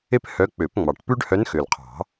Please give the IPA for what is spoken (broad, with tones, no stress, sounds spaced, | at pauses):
e˥ p h œ˧˥ k͡p ø˨˩˦ p ŋ͡m ɑ˨˩ ʈ p ʉ˥ ɖ h œ˧˥ n x ø˨˩ l qʰ ɑ̤˨˩˦